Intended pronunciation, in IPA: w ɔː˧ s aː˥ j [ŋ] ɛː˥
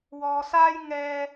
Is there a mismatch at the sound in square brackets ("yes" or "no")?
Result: no